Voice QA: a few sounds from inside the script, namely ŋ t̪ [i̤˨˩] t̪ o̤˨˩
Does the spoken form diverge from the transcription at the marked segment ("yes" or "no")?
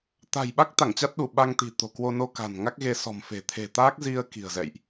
no